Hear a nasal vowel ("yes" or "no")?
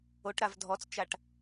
no